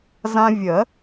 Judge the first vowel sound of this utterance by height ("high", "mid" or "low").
low